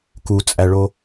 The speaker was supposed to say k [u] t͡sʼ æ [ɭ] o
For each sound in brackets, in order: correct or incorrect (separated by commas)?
correct, correct